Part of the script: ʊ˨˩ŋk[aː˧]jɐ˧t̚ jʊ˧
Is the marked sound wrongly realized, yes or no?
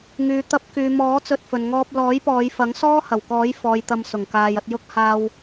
yes